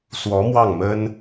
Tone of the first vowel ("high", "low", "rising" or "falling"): rising